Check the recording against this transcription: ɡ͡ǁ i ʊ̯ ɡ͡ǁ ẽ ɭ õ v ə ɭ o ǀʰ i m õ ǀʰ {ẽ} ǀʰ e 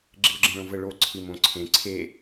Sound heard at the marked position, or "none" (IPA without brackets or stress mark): ẽ